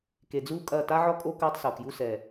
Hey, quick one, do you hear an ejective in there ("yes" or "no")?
yes